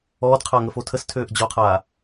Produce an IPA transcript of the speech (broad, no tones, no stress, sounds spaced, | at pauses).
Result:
ɔː d qʰ a ŋ ə f o tʰ ə s tʰ øː ʔ d͡ʑ ɔ qʰ aː